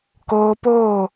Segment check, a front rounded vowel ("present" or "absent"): absent